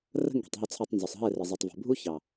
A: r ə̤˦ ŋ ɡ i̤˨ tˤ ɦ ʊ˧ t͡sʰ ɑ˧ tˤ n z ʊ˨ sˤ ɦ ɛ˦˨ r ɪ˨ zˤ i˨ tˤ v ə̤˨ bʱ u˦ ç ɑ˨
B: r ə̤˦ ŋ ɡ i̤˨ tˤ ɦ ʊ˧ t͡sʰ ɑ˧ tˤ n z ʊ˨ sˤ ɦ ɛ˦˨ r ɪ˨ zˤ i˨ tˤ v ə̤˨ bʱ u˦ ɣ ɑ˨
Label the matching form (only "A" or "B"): A